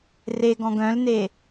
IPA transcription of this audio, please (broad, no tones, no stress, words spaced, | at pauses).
reɡɔ̃ɡ œ̃lne